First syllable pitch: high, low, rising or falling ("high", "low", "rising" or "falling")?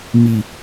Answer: low